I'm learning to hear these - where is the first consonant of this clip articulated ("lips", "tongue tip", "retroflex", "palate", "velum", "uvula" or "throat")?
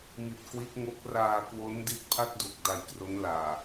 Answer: lips